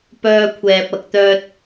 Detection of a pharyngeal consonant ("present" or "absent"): absent